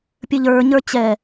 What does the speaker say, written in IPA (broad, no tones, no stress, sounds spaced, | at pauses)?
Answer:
pʲ ɘ ʎ ə˞ ɲ ə˞ t͡ɕ ɛ